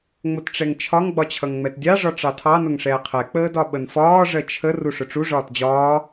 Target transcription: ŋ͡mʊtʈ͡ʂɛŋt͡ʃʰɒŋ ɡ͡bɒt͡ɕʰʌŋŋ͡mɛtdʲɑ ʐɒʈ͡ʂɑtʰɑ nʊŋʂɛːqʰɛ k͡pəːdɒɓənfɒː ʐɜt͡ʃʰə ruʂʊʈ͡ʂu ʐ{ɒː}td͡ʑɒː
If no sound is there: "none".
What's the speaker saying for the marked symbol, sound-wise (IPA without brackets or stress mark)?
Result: ɒː